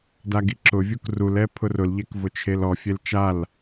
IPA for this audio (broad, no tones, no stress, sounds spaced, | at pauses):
d a ɡ i ǁ ʊ vʲ u k r u l ɛ pʰ ʊ r ʊ l ʎ ɛ k v ʊ t͡ʃʰ e l ɔ fʲ e l t͡ʃ a l